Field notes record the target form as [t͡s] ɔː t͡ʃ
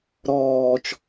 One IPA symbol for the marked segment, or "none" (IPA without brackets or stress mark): ɾ